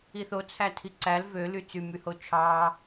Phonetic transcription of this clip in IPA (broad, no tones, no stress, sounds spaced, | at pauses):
i θ o t͡sʰ æ tʰ i ǀ æ l v ø l y t͡s y m y h o t͡ʃʰ ɑː